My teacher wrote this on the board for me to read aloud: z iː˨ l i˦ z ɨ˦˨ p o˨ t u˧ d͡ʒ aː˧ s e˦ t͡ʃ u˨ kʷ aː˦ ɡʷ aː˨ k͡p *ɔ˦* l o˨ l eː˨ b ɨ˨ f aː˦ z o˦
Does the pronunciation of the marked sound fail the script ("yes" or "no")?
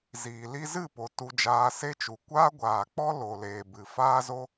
no